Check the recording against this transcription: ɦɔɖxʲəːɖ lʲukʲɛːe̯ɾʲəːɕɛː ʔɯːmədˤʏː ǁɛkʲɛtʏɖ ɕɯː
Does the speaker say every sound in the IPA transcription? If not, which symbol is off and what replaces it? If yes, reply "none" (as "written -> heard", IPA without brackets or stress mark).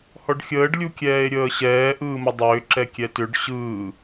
ɦ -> h